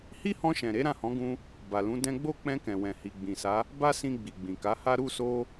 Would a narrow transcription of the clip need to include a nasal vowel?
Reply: yes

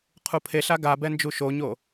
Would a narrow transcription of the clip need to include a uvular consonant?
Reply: yes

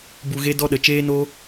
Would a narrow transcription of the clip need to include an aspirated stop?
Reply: no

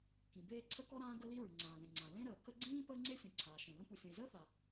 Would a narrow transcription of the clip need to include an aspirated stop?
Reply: yes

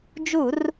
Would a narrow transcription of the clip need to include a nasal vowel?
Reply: no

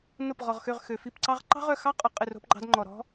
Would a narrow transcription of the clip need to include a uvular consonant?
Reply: yes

